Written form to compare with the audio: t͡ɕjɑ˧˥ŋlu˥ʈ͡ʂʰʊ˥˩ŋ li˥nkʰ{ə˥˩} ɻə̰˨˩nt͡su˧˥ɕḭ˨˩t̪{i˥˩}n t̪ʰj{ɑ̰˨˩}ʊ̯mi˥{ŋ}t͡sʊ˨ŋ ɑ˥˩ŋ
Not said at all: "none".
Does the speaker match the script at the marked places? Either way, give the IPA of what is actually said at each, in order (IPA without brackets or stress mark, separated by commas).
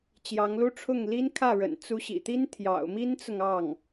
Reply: ä˥˩, i˥, ɑ̰˨˩, n